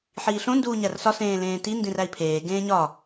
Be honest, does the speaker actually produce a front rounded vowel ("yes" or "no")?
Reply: no